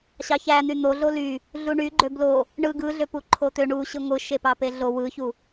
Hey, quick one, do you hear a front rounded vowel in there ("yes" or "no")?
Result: yes